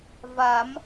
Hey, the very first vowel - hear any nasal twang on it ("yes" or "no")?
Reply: no